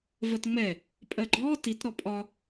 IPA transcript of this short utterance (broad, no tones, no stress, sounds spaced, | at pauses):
v ɜ t ŋ͡m ɛ | pʼ ɜ ɡ͡ǃ ɔː t i t ɾ ɔ pʼ ɒ